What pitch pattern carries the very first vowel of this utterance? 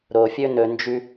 low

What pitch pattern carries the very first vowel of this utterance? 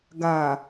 low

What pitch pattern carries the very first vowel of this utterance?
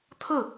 falling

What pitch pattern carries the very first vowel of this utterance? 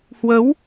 rising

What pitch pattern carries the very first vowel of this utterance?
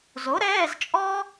rising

